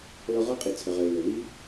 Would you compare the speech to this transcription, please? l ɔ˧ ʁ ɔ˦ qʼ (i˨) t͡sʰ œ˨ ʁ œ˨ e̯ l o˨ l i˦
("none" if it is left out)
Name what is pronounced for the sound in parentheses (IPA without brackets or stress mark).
i˨